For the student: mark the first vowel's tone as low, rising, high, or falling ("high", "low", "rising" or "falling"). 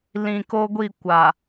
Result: low